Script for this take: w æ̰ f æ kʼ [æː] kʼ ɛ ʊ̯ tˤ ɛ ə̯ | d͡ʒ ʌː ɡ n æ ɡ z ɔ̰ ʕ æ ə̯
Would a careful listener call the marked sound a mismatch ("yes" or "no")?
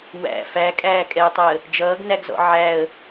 no